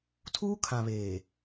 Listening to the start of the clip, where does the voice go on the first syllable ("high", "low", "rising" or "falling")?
high